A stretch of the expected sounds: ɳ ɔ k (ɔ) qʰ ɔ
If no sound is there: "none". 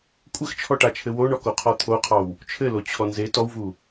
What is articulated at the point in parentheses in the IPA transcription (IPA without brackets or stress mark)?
o